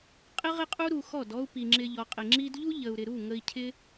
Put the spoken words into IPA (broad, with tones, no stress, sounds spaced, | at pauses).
qʼ ɪ˦ ʁ ɪ˦ qʼ u˦ ɾ u˧ x ɔ˦˨ d ɔ˦ u̯ p i˨ ŋ͡ǁ ɪ˧ ʎ ɔ˨ qʼ ɪ˨ ŋ͡ǁ i˦ d ʎ u˦ ʎ ə˨ u̯ ɾ ɪ˨ ɾ u˦˨ ŋ ə˧ i̯ cʰ ɪ˦